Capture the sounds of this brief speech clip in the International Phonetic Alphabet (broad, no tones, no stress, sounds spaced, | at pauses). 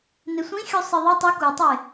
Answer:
n e sʷ ĩ xʲ u sˤ ɨ ðˤ e tˤ ʉ k u tˤ e